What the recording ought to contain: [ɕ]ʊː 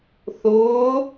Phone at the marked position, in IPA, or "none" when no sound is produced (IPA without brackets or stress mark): θ